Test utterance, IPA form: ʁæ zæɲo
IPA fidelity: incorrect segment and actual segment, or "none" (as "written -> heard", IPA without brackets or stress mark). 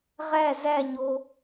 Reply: none